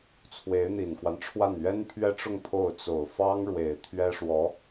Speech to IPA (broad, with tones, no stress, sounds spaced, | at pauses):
t͡sʰ w e˧˥ ɪ̯ n̪ i˨˩ n k w a˦ n ʈ͡ʂʰ w a˥˩ n ɥ ɛ˥ n pʰ ɥ ɛ˥ ʈ͡ʂ ʊ˥˧ ŋ pʰ o˥˩ ʊ̯ t͡s o˨˩ ʊ̯ f ɑ˥ ŋ ɻ w e˨˩ ɪ̯ t̪ʰ ɥ ɛ˥ ʂ w ɔ˧˥